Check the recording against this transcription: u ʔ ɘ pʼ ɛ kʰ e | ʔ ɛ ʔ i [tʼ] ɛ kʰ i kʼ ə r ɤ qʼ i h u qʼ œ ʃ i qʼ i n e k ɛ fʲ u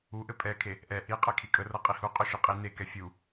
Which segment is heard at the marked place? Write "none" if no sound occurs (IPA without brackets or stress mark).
qʼ